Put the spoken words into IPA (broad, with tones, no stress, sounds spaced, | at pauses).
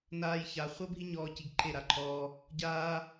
n aː˦ j ç a˧ χʷ ɤ˦ bʱ i˦ ɲ ɔː˧ c i˧ ɡ ǃʰ e˦˨ ɾ a˧ ǃʰ ɔː˧ | ɟ aː˦